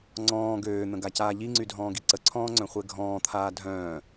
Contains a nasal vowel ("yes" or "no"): yes